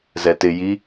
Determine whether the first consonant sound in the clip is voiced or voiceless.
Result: voiced